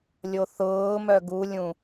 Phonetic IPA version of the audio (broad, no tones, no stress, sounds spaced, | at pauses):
lʲ o θ ʊː m œ ɡ u lʲ ũ